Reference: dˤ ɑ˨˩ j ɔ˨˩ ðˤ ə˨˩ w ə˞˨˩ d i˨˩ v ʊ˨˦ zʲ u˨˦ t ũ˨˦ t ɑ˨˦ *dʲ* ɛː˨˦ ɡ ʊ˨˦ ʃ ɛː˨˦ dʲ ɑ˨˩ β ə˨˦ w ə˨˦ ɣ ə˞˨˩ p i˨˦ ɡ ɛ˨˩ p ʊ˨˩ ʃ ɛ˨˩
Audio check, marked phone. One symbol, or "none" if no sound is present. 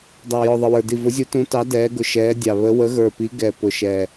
d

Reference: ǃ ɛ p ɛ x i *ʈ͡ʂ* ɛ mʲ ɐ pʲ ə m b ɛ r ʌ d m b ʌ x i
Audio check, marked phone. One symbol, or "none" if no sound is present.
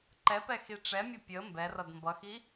ʈ͡ʂ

